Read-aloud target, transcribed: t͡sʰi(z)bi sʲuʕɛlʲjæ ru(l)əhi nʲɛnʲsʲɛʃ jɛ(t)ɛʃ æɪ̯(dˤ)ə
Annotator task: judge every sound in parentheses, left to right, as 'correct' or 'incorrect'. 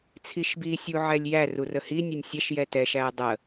incorrect, incorrect, correct, correct

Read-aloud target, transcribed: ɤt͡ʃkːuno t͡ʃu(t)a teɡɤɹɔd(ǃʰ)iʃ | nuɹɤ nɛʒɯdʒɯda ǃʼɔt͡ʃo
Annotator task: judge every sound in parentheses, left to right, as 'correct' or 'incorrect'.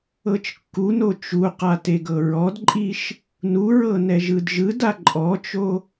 incorrect, incorrect

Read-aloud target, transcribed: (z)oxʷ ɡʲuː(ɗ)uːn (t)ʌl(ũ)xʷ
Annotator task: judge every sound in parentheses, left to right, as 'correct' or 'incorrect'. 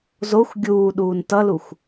correct, correct, correct, incorrect

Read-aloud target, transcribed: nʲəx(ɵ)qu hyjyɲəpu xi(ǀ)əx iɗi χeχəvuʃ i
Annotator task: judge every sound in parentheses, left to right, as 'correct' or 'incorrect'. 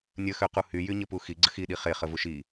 incorrect, incorrect

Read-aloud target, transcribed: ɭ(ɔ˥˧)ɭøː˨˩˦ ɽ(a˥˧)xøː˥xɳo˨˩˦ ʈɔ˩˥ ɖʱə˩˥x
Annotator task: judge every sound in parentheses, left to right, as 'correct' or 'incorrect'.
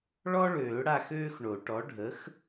incorrect, correct

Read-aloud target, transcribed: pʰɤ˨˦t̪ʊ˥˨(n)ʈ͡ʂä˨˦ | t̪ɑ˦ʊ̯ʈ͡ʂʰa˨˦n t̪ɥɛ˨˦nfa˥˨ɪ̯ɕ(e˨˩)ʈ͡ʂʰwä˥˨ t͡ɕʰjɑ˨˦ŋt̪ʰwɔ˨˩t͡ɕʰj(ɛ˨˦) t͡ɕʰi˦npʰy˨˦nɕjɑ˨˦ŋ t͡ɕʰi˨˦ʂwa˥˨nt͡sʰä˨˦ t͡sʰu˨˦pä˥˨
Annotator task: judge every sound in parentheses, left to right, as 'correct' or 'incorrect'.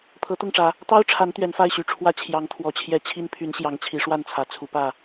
incorrect, incorrect, correct

